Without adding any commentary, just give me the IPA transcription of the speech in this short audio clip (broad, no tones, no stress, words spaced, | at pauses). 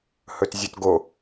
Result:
hɵtzʲɵtɡo